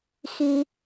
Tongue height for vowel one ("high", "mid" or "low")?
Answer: high